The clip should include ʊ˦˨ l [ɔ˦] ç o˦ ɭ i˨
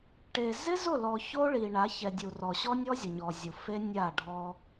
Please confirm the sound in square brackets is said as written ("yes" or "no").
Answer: no